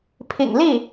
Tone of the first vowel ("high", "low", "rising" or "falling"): low